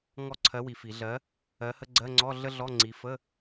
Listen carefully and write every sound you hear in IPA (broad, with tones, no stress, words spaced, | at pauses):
ŋɔ˦˨ǀʰɜ˨˥ wi˨fi˨˩˦ ɮɜ˨˥ | ɜ˨˥hə˧˥˧ɡ͡ǀɜ˧˥˧ŋ͡ǀɔ˧˥˧ ɮə˥ɮɔ˧˥˧ ŋ͡ǀi˨˥ fə˧˥˧